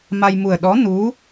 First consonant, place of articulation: labial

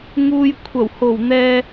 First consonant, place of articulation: velar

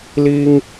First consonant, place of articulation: alveolar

